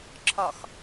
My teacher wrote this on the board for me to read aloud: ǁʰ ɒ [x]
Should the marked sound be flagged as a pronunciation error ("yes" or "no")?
no